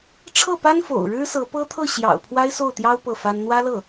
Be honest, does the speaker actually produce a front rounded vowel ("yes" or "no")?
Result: no